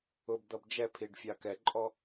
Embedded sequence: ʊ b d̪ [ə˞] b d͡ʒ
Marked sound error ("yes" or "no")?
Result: yes